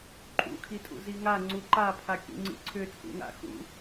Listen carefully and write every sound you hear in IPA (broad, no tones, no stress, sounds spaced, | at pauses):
ǃʼ ṵ kʰ i tʼ ṵ z i ŋ a ŋ͡ǀ u ǃ a pʰ a kʲ ṵ ŋ͡ǀ ḭ ǀʰ ʏ t͡sʼ ṵ ŋ a̰ x ṵ